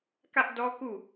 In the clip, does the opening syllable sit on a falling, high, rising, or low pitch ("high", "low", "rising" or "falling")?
high